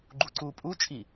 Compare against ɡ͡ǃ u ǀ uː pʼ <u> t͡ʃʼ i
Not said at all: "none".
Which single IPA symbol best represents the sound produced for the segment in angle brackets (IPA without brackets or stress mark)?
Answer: u